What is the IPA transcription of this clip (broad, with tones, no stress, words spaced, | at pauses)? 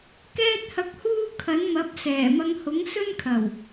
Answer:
kɛː˧t̚hɐ˨˥k̚huː˧ kʰɐ˨˥nmɐ˨˥p̚ sɛː˨˩mɐ˧ŋ hʊ˨˥ŋsɵ˥nkʰɐ˨˩w